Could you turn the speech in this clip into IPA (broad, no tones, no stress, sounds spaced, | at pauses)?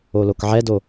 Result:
o l o k ʕ ɛ d o